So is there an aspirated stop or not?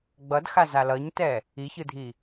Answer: no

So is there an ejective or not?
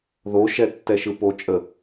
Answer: yes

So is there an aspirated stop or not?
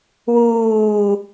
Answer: no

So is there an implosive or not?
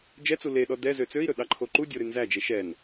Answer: yes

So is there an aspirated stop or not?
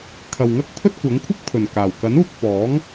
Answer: yes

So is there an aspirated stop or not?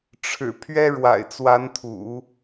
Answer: yes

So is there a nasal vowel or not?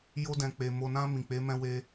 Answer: yes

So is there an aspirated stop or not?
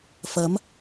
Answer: no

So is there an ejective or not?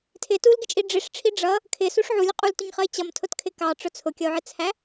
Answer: yes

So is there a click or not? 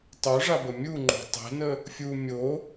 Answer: yes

